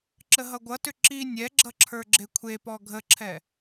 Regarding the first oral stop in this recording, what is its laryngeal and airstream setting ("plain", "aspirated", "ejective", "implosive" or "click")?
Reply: click